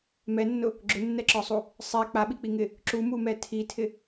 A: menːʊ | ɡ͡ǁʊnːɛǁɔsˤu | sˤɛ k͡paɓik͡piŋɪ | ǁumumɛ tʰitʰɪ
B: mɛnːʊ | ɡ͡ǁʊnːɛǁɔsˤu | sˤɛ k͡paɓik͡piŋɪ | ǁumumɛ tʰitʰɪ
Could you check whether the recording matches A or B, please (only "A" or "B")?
B